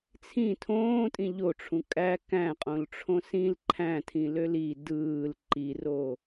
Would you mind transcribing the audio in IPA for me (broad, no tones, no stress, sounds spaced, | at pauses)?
t͡sʰ ĩ tʰ õː tʼ ĩ ʎ o ʈ͡ʂʰ ũ kʼ æ k æ̃ qʼ õ l ʈ͡ʂʰ õ s ĩ l ǃʰ æ̃ tʰ ĩ l ø l i d ɯː l ǃ i r o